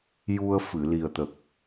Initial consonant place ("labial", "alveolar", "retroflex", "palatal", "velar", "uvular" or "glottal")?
palatal